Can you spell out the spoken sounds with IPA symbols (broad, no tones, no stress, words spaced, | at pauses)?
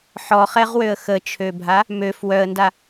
ħɔχɛʁwøə̯ xət͡ʃʰøbʱa | møf wœə̯nda